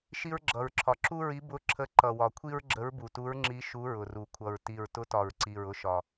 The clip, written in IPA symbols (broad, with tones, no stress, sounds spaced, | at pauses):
ʃ i˥ ɹ ɡ͡ǁ ʌ˨˩ ɹ ǁʰ ɒ˨˩ ǁ u˥ ɹ i˧˥ b ʊ˧˥ ǁʰ ə˧˥ ǃ ʌ˨˩ w ɒ˨˩ kʷʰ i˥ ɹ ɡ͡ǁ ə˧˥ ɹ b u˨˩ t u˧˥ ɹ ŋ͡ǁ i˧˥ ʃ u˧˥ ɹ ʊ˨˩ r u˨˩ kʷʰ ʌ˨˩ ɹ t i˨˩ ɹ t ʊ˧˥ t ɒ˨˩ ɹ ǀ i˨˩ ɹ ʊ˧˥ ʃ ɒ˨˩